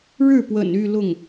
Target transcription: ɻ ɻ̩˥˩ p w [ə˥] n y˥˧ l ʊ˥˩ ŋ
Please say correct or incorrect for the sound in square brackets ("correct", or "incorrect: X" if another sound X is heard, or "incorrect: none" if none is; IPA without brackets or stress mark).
incorrect: ə̰˨˩